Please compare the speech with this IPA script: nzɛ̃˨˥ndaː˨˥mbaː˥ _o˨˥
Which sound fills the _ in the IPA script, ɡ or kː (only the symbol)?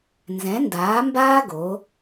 ɡ